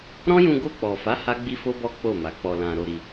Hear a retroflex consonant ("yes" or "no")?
no